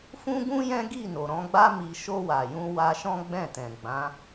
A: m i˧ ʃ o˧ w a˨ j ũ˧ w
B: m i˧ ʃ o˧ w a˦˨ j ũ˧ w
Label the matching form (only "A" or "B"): A